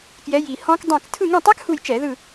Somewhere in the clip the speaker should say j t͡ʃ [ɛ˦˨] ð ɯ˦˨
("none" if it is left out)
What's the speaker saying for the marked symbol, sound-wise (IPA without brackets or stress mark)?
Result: ɛ˧˩˧